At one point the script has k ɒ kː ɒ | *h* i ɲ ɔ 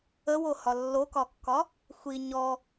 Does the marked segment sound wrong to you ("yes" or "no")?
yes